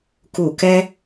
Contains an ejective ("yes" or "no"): no